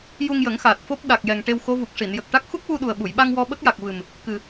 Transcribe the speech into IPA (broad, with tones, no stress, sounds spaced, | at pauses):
j u˧ ŋ j ə˨˩˦ ŋ x aː˨˩ t̚ f o˦˥ p̚ ɗ a˨˩ k̚ j ɛ˨˩ ŋ ʈ e˧ w x o˧˥ v u˨˩ k̚ ʂ i˨˩˨ n j ə˨˩ k̚ ʈ a˦˥ k̚ x u˦˥ k̚ w u˧ ɗ u˨˩ ə̯ ɓ u˨˩˨ j ɓ a˧ ŋ w ɔ˧ ɓ ə˦˥ k̚ j a˨˩ k̚ v ɨ˨˩ m | k ɨ˨˩